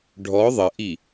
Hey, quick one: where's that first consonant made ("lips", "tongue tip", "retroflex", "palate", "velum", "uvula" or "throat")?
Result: retroflex